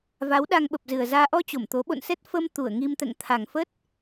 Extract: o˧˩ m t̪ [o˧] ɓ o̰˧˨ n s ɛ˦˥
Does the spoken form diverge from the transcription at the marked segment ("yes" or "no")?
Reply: yes